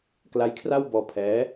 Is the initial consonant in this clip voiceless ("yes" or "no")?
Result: yes